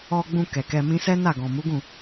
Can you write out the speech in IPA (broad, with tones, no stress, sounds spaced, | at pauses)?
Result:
ɔ˧ ɡ͡b ũ˧ k ɛ˨ k ɛ˧ m ĩ˦ s ɛ˦ n a˦˨ ɡ ɔ̃˨ m u˨˦ ɡ ũ˦˨